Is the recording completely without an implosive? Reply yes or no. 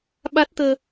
no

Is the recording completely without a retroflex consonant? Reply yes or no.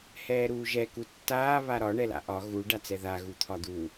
no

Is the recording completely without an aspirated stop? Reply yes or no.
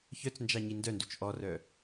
yes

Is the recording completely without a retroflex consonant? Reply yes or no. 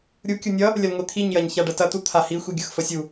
no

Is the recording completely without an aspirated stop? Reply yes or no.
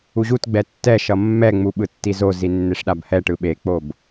yes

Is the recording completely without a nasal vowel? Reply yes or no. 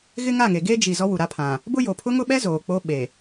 no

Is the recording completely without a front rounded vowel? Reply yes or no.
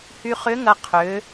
no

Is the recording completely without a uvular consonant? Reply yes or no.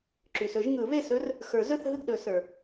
yes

